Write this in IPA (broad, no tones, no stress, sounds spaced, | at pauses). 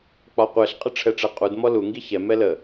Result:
k͡p ɒ qʷ ɛ ɬ qʼ ə ʈ͡ʂʰ ɛ ʈ͡ʂ ɛ qʼ u d m ɔ l u ŋ ɡ i ç ɛ m ɛ l ə